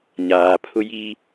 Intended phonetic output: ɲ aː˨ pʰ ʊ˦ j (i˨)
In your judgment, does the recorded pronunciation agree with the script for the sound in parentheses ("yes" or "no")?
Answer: no